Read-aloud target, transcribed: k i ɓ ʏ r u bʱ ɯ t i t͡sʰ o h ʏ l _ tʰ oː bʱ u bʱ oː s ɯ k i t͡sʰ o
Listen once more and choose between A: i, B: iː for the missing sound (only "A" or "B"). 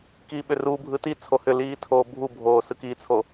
B